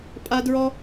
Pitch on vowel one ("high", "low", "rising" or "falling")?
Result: high